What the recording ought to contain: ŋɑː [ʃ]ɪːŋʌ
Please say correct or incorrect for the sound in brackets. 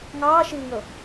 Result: correct